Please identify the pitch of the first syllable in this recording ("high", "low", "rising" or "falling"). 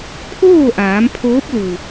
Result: falling